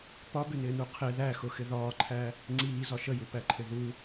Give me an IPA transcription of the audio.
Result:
p ɒ b ɪ n ɪː n u qʰ ɪ ð æ x ʊ x ɪ ð ɒː ǃʰ æ | ŋ͡ǀ iː z ɒ ʃ ə j u p æ ǃʰ ɪ ð u

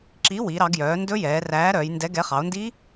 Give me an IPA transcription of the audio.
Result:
ǁ i˨˥ w i˩˧ ɾ ɑ˩˧ ɡ j œː˩˧ n d ɵ˦˥ j ɛː˩˧ r æː˨˥ ɾ œː˩˧ j n d ɛ˨˥ ɡ ɛ˨˥ χ ɑ˩˧ o̯ n d i˦˥

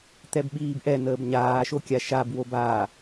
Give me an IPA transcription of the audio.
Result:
t̪ ɛ b ɓ iː b ʔ ɛ n̪ əː b ɲ aː ʃ o kʲ a ʃ a b w o b a

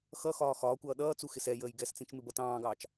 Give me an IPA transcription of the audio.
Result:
x ʌ x ɒː x ɒː kʷ ʌː ɗ ʌː t͡s u x ɪ s ɛ j əː j ɡ ɛ s t͡s ĩ t͡ʃ m ɪ b ʌ t ɑ̃ː ɡ ɑː t͡ʃ

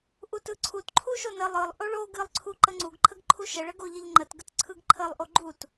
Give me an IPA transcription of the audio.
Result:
ʔ u t ɯ ǀʰ u t ǃʰ u ʃ o n ə lˠ ɯ lˠ ʔ o ɭ o ɡ ɨ lˠ ǀʰ u ǃ ə ŋ͡ǀ u ɡ ǃʰ ə ɡ ǃʰ u ʃ ə ɭ ə ɡ o ʎ ə ʎ ŋ͡ǃ ə t ɡ ə t ǀʰ ɯ ɡ ǃʰ ə lˠ ʔ o ɡ͡ǃ u t

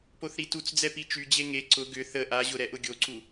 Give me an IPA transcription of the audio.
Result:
p o θ ɾ i t u t͡s d͡z ɛ p i t͡ʃ y d͡ʑ e ŋ e ǀ ʊ ɡ ʏ θ ə ʔ a ʑ ʊ ɾ ɛ ʔ ʊ ɡʲ o ǀ u

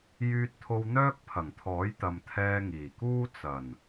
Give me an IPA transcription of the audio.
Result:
j yː˧ t̚ t̪ʰ o˧ w n̪ œː˥ k̚ pʰ ɐ˨˩ ŋ t̪ʰ ɔː˨˥ j t̪ ɐ˨ m t̪ʰ ɛː˧ ŋ iː˨˩ k uː˥ t͡s ɐ˨˩ n

